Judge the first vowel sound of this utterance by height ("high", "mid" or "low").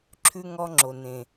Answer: high